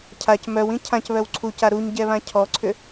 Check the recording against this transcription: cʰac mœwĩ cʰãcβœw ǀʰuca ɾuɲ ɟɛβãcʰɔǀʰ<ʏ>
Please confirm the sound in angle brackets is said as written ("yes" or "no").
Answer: yes